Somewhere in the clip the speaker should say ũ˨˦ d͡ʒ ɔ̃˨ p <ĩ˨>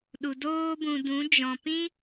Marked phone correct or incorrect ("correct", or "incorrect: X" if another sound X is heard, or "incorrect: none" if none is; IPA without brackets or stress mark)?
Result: incorrect: ĩ˦